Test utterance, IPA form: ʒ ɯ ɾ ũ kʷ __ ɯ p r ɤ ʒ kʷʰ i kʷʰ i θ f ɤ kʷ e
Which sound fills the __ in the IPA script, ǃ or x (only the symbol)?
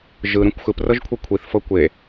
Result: x